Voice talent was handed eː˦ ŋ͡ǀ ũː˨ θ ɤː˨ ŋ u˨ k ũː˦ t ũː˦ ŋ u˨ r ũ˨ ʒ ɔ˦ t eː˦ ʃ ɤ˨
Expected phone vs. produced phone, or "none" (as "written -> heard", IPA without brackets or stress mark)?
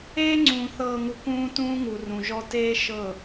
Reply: none